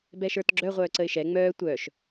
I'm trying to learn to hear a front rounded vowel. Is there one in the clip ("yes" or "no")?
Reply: yes